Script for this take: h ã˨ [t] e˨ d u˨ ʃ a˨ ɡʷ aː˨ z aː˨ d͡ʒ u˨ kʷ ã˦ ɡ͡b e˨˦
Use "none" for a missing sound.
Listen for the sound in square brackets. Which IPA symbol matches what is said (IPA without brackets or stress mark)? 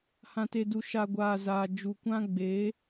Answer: t